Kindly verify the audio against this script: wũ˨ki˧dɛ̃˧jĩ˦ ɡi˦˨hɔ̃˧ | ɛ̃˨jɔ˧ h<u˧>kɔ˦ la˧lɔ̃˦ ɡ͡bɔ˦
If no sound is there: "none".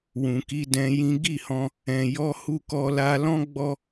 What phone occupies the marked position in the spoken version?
u˦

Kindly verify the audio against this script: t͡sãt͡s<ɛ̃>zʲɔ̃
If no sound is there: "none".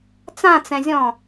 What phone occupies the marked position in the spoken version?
ɛ̃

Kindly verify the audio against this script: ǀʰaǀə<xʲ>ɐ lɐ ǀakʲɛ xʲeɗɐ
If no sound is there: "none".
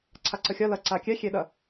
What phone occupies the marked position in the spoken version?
xʲ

